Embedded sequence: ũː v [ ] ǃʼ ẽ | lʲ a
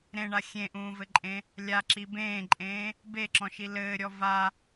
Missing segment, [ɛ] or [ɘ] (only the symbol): ɘ